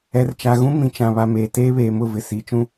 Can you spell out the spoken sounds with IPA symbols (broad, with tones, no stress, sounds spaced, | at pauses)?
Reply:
ɛ˨ r t͡ʃ a˨ ɣ ũ˦ m ĩ˨ t͡ʃ ã˨ β a˨ m eː˨ t eː˦ β eː˨ m ʊ˦˨ v ɪ˨ s iː˨ t͡ʃ ũ˦